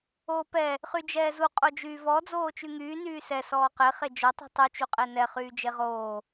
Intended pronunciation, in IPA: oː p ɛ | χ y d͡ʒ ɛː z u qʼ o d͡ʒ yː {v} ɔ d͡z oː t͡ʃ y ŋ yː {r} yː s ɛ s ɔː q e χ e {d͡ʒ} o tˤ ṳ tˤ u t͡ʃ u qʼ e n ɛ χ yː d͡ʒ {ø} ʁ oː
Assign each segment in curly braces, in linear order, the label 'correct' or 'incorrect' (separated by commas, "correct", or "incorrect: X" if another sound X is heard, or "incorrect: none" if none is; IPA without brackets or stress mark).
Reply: correct, incorrect: n, correct, incorrect: e